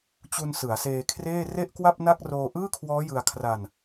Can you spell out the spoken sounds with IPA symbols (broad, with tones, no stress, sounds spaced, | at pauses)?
t͡ɕ u˧ n s ɯ˩˦ a̯ s eː˧ kʰ r eː˥˩ r e˥˩ ʔ k w a˥˩ p̚ n a˥˩ k̚ r oː˧ ʔ ɯː˥˩ kʰ w ɔː˦˥ j ɯ˧ a̯ kʰ r a˧ n